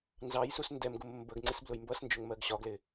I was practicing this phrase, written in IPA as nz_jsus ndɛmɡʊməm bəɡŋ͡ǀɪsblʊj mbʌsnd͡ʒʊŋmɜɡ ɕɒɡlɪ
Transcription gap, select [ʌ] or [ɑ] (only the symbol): ɑ